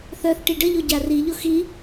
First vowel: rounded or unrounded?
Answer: rounded